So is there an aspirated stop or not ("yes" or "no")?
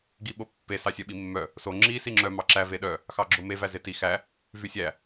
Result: no